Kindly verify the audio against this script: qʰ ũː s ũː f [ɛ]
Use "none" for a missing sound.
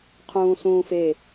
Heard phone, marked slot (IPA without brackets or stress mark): e